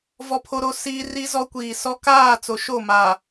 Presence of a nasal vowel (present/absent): absent